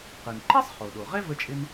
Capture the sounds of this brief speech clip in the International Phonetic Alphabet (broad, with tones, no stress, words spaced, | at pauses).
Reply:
qɨ˩nǃɛ˥sˤχo˩ ɗo˩ʁɛ˥ və˥t͡ʃʼɪ˥n